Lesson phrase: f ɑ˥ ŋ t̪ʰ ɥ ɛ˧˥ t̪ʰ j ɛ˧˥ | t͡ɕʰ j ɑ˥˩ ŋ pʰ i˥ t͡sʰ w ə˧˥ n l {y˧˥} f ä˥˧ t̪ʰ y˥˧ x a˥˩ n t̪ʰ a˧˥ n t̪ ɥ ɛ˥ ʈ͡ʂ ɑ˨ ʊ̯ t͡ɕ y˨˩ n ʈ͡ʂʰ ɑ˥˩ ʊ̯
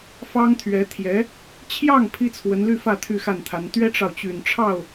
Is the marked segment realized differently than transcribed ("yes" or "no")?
yes